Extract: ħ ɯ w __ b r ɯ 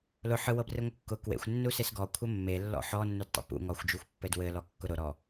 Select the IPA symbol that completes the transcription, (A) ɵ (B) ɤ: B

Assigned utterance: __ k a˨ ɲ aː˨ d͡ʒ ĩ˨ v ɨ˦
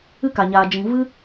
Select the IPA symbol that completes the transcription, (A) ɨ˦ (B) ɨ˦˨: A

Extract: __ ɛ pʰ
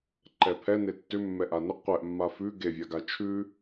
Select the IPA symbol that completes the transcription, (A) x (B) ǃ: B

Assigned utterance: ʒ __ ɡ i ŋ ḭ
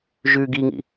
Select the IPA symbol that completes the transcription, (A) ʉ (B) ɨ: A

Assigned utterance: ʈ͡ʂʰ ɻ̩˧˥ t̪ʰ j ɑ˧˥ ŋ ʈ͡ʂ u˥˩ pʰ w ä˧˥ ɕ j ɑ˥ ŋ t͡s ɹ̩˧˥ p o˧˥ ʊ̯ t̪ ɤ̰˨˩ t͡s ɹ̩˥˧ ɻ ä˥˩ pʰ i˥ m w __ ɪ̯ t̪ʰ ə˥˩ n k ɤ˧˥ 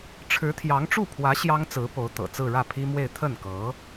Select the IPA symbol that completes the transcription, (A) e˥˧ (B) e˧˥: A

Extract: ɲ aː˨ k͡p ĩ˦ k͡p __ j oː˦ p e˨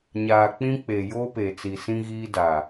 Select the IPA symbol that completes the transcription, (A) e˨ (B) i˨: A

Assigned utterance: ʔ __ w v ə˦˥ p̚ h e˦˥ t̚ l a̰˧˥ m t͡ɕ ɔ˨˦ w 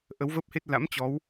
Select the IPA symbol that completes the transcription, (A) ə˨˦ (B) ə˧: A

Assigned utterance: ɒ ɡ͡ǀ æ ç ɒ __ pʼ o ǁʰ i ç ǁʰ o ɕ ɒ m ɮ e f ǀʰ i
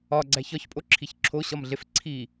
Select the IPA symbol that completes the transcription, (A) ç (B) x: A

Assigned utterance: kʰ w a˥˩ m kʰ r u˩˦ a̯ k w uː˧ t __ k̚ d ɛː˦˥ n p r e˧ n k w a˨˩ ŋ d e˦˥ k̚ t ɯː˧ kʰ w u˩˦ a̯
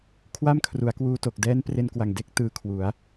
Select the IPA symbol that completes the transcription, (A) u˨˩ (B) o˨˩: B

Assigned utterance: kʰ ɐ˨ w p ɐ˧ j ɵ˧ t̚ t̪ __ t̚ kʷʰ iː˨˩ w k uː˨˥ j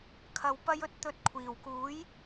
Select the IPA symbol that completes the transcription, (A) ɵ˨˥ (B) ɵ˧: A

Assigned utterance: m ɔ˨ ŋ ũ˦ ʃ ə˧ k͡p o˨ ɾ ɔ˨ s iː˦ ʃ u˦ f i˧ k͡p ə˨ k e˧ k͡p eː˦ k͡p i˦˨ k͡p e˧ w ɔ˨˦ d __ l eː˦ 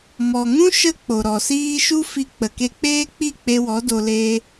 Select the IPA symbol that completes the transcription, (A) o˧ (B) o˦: A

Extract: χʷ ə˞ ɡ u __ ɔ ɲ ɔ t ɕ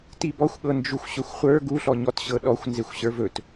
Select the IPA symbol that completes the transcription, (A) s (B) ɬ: B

